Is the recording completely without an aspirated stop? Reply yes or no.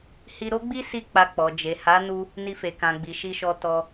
yes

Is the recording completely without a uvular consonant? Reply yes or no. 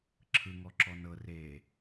yes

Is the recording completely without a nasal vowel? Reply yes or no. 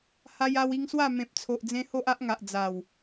no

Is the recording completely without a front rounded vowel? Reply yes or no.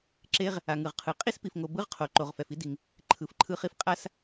yes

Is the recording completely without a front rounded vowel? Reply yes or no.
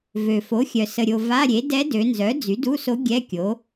no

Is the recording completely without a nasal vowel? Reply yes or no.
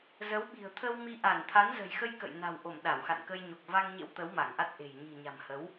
yes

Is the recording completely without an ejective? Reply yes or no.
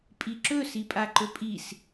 no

